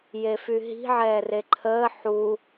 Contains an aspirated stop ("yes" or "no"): yes